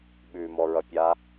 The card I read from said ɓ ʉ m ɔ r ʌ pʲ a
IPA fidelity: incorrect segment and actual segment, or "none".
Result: r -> ɹ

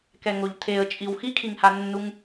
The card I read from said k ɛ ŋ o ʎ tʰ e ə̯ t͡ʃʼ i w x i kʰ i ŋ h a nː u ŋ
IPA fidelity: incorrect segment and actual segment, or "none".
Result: none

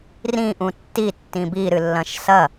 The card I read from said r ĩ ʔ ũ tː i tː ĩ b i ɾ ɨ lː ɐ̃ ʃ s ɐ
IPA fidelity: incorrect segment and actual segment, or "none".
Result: none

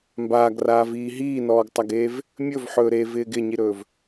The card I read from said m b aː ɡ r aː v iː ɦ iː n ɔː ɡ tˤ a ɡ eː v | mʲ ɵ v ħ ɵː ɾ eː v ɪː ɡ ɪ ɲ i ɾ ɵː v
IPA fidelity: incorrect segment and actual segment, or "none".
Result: none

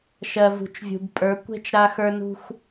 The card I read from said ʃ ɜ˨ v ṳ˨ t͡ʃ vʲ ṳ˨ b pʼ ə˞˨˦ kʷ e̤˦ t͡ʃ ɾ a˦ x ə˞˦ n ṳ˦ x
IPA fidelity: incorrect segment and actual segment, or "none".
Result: none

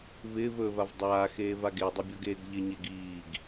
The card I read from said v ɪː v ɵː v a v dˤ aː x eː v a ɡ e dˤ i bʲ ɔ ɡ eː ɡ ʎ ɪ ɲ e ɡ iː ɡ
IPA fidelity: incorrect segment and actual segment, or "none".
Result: none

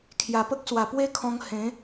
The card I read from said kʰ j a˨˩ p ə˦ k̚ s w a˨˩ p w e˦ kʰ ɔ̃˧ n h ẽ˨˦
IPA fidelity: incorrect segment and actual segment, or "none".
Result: n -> ŋ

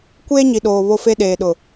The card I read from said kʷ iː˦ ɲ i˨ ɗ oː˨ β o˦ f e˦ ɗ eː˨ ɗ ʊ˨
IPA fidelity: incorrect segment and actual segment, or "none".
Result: iː˦ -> eː˦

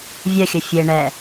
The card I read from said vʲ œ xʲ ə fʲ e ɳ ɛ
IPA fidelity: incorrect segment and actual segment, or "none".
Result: none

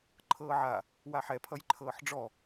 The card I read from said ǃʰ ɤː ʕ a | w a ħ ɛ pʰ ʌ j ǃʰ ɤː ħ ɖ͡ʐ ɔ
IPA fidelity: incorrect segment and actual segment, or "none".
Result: none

